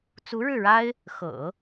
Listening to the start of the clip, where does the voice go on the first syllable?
rising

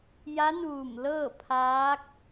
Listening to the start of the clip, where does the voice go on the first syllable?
rising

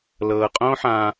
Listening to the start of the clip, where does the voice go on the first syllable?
low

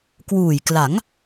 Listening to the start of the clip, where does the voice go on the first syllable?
low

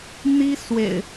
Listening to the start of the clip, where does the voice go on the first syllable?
high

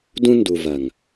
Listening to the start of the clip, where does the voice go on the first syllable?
high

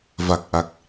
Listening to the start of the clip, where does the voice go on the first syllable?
low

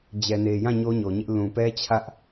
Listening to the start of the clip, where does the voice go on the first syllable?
low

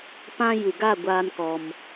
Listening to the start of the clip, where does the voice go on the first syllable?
high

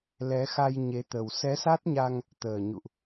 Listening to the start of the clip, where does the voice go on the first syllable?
rising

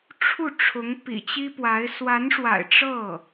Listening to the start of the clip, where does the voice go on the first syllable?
falling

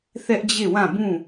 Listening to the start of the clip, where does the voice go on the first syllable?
high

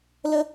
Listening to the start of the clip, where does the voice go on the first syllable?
high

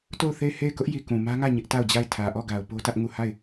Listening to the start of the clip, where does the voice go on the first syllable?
falling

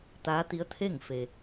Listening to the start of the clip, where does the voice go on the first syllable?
rising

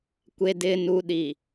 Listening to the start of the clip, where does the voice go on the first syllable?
low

